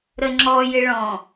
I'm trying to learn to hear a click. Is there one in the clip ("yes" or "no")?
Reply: yes